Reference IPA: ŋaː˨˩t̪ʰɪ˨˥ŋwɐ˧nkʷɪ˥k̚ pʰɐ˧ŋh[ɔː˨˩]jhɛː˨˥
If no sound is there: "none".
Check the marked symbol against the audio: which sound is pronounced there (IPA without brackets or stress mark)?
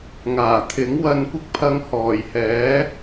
ɔː˨˩